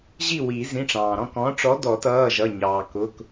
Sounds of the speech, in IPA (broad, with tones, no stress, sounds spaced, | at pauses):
ʑ i˥˨ w i˨˩˦ z ĩ˩˧˩ ʈ͡ʂ ɑ̃ː˩ ɾ ɔ̃˥˨ k ɔ̃˨˥ ʈ͡ʂ ɔ˨˥ d ɔ˨˩˦ t ʌː˩˧˩ ʒ ʌ˩˧˩ ɲ ɑː˩ k ʊ˩˧˩ k